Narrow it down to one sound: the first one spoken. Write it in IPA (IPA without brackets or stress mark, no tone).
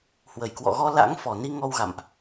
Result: h